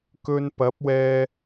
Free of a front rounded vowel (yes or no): yes